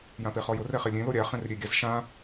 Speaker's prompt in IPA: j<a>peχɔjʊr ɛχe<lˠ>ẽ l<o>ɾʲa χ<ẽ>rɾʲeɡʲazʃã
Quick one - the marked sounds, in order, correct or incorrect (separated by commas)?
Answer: incorrect, incorrect, correct, correct